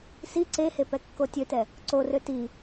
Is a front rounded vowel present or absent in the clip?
present